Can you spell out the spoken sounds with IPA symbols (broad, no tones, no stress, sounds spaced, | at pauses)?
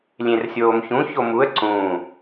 lʲ ẽ r sʲ oː m ç ũ ç o m u ə̯ ǀ ũː